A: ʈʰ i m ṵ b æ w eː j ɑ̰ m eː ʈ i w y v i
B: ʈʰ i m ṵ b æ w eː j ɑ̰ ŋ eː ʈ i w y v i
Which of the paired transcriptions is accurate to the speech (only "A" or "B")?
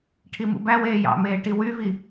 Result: A